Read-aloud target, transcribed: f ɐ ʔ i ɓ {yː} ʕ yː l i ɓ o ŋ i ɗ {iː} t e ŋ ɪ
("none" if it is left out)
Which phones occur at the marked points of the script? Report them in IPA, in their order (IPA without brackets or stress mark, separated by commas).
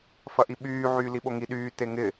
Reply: yː, yː